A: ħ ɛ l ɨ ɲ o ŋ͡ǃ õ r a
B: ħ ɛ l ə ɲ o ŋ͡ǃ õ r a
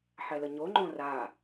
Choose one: B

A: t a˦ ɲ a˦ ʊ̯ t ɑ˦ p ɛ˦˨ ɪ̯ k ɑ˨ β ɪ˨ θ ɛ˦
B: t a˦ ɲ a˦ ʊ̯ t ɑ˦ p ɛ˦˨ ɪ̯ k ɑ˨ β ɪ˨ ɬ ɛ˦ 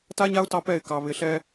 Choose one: B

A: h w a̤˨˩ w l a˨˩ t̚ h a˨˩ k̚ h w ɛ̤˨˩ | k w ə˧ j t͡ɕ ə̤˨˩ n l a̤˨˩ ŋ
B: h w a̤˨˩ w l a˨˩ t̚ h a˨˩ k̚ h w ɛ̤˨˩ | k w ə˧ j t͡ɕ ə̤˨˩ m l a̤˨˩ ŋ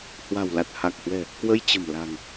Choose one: B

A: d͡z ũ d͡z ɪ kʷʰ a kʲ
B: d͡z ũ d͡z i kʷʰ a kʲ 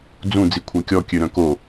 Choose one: B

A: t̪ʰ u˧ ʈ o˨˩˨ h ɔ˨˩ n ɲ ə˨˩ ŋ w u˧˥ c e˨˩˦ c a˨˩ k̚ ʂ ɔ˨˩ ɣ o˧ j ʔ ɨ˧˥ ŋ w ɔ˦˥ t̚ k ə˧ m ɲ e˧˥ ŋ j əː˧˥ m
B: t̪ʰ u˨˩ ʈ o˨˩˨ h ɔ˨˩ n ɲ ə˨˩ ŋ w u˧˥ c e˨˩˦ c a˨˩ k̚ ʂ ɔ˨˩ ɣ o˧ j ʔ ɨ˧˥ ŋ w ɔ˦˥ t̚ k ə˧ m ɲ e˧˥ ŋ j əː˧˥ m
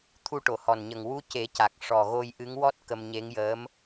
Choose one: A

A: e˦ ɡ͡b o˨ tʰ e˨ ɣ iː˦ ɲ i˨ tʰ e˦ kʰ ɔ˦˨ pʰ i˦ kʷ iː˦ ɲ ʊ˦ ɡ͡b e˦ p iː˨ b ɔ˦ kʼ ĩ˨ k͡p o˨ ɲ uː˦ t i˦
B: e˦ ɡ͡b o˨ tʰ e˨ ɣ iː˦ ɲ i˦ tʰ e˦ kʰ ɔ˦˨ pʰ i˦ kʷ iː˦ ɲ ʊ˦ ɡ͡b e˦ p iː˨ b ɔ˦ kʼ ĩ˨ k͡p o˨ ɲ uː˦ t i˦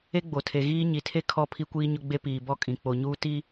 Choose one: A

